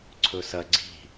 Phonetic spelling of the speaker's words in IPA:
ǀʰ ɵ s ɐ ɡ͡ǀ i̤

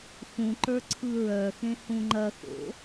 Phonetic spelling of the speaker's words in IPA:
x ũ ǃ ə˞ ǀʰ ɯ ɹ œ x ẽ h ũ ŋ͡ǃ ɐ x o̰

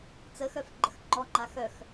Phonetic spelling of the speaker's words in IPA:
t͡s ə x œ f ɡ͡ǃ ə x ŋ͡ǃ ɔ ŋ͡ǃ a x œ x

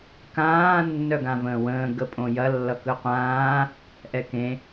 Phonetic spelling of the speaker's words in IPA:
k ãː nː œ ɡ ã v ə̃ː w ə̃ː ɡ ə pʼ õ j ɐ lː ʌ k ɯ qʷ ãː | ʔ ɛ k ẽ

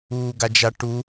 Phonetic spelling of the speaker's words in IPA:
uː ɡ a d͡ʒ a ʈ u

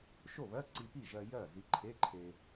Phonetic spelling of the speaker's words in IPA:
ʃ o˥˩ β ɜ˧˥˧ ǀ i˧ p i˥˩ ʒ ɜ˧ j ɜ˥˩ z i˨˥ ǃʰ e˧˥˧ ǃʰ e˧

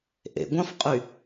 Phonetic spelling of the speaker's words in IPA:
ʔ ḛ ɡʷ ɑ̃ f qʼ y

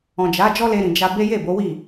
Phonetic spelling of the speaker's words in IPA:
ɔ̃˨ d͡ʒ a˨˦ d͡ʒ ɔ˦ l e˧ ɾ ĩ˨ d͡ʒ a˧ b e˦ j e˦˨ b o˨˦ w i˦˨

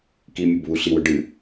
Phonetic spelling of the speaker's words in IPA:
k i mʲ ɐ b β u ɬ i w ɵ ɖ ɨ

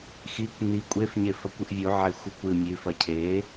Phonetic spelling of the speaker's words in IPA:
x i kʷ n i kʷʼ e f ɲ e f ɐ kʷ ɨ ʔ vʲ u ʕ e xʷ ɨ kʷ ɨ mʲ ʉ f ɐ cʰ e

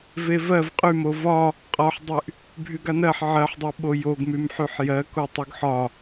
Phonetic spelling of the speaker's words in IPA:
v e v ɜ v qʼ y m o v ɒ | qʼ ɒ ħ dˤ y ʔ | bʱ y ɡ a n ɜ ħ ʕ ɜ ħ dˤ u ɓ o j o ɡ m y m ħ y ħ j ɜ k o tˤ y ɡ ħ ɒ

